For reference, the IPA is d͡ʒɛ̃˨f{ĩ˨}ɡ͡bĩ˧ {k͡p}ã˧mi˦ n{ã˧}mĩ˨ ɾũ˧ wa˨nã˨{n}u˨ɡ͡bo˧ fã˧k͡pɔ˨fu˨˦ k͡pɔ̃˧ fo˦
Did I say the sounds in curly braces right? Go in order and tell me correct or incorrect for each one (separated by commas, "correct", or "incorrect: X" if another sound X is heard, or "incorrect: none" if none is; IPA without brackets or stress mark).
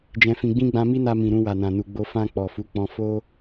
correct, incorrect: ɡ͡b, incorrect: a˧, correct